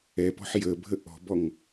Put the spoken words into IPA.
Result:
ɛ p ɔ̤ ħ j ə bʱ ə ʔ ɔ̤ b ɔ ŋ

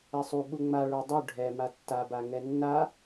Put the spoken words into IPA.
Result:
ɛ sˤ u ɓ u ŋ͡m a ɭ ə˞ dˤ u ɖʱ ɛ m a tː a b a ŋ ɛ nː a

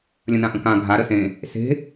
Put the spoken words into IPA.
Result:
lʲ ə̃ n ã ʔ ə̃ k ã ɡʱ a ɾ ə s ẽ | s e̤

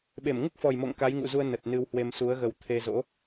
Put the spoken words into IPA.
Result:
ɓ e˧˩ m ŋ u˦˥ k̚ f ɔ˨˩ j m o̰˧˨ ŋ k a˨˦ j ŋ ṵ˧˨ z u˧ ə̯ n ə˨˩ t̚ n ɨ˧ w h w e˧ m s u˨˦ ə̯ ɣ ə˨˩ w t̪ʰ e˧ z o̰˧˥

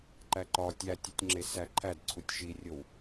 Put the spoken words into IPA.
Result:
ǃ æ ǃ ɒ tʲ æ tʲ o tʲ ŋ͡ǁ e s æ ǃʰ æ d ǀʰ u tʲ ʃ i rʲ o w

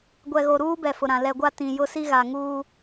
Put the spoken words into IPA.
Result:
ɡʷ ɛ˨ ɣ o˨ ɾ uː˦ b ɛ˨ f ʊ˨ ɾ ã˨ l ɛ˨ ɡʷ a˦ t ĩ˨ j ʊ˦ s i˦ ɣ a˨ ŋ uː˦

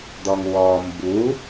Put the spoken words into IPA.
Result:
d̪ ɔ ŋ w ɔ m b u

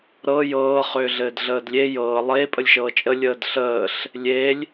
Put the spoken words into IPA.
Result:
ɾ ɤ j ɤː χ ʏː ɮ ɘː d ɮ əː d lʲ e j ɤː lˠ e pʼ ə lʲ ʃ ɤː t͡ʃʼ ə lʲ əː d ɬ əː ɬ | lʲ e lʲ

